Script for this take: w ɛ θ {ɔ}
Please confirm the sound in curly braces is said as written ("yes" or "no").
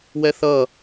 no